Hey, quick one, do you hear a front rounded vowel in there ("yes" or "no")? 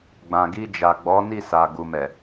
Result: no